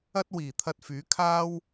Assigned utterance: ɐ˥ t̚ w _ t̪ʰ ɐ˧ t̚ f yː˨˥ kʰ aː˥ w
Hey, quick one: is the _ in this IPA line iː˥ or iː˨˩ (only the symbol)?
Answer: iː˨˩